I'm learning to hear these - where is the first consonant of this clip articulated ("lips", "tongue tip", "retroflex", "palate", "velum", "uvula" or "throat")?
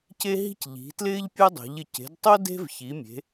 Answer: palate